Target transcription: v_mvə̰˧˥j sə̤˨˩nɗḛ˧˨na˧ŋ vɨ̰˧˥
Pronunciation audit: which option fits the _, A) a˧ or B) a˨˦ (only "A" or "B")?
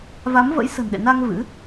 B